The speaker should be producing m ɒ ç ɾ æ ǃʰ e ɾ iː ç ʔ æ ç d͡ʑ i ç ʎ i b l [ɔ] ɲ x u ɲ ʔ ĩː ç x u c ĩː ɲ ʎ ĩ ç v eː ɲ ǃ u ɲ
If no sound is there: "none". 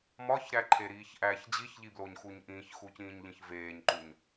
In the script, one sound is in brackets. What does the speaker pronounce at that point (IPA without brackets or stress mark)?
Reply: o